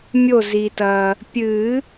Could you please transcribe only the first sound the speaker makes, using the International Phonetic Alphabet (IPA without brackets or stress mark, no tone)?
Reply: mʲ